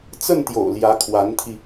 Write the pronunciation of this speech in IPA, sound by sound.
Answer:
t͡s ə˥˩ n t̪ j o̰˨˩ ʊ̯ l j ä˧˥ kʰ w a˧˥ n t̪ʰ i˧

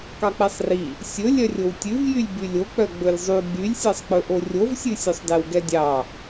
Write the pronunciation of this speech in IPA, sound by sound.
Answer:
k ɑ k͡p ɛ sˤ r i | sʲ ɵ lʲ œ rʲ o w tʲ ʉ v j y lʲ b y lʲ o k͡p œ ɡ͡b ɵ lʲ zˤ y ɡ͡b y lʲ sʲ ɛ sˤ k͡p ɵ ʔ o rʲ o v sʲ ʉ sʲ œ sˤ d ɛ w ɡ ɛ dʲ ɑ

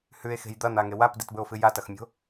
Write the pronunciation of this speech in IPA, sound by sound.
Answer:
h ʉ e̯ x e̤ j d̪ ɐ n̪ a ŋ e w a p d i t b ɵ o̯ f ɨ j a t ɐ x mʲ o̤

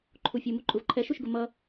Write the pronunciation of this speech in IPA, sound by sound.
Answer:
ǃʰ u fʲ u m u ǃʼ u v ǃʰ ɛ ʃ u ʃ ɡ ʊ m ʌ

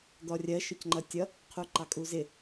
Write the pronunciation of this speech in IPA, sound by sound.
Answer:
d̪ ɔ rʲ ɜ ʃ ʊ c ŋ͡ǃ ʌ tʲ ʌ | qʰ u ǃ ɑ kʼ u z ɪ

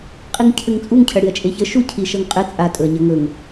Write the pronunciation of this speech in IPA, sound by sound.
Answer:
qʼ i ŋ cʰ ɘ ŋ t͡sʼ u ŋ cʰ ɐ ɽ i ɐ̯ t͡ʃʼ e ç ə ʃ u cʰ i ʃ ʌ ŋ qʼ ɘ t͡sʼ a tʼ ɵ ɐ̯ ɲ ɐ ŋ ɵ ŋ

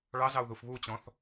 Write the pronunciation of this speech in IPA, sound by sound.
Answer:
ɭ ɑ z ɑ u̯ ð u f β u t͡ɕ ɔ̃ θ

